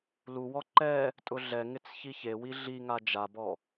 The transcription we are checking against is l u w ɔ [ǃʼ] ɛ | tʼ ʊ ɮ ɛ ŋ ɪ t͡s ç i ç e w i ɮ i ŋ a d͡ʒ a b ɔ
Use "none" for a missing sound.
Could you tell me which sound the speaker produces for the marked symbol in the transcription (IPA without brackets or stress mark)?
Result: ǃ